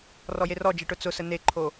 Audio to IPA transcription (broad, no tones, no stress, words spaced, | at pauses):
rɔjerɔd͡ʒe ʈʊt͡sʊsə neǃʰo